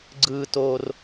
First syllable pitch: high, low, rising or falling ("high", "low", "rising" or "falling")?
high